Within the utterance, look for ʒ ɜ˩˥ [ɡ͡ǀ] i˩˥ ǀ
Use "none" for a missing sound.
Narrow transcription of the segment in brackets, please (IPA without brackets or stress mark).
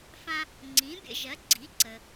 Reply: ɡ͡ǀ